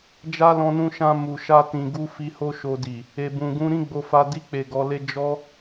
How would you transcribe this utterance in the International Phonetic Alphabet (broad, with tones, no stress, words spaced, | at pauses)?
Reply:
d͡ʒa˦lɔ̃˧nũ˧ʃã˧ mu˨ʃa˧tĩ˨ɡu˧ fi˧ho˦ʃo˧di˨ | e˨bũ˨ɡũ˧ ɾĩ˦ɡ͡bo˧fa˧ di˧k͡pe˨ ɡɔ˧le˦ d͡ʒɔ˦